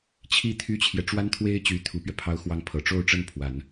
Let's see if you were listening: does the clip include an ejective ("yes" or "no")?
no